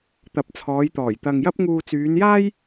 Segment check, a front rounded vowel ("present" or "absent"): present